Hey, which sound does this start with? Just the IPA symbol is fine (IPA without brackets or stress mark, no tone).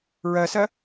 ɹ